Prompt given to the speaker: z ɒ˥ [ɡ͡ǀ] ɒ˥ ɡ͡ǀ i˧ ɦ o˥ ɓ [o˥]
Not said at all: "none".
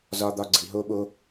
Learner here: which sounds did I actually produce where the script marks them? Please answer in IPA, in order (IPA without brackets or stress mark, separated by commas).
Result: d̪, o˥